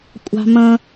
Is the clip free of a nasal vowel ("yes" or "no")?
no